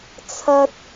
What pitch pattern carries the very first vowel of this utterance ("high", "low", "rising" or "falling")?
high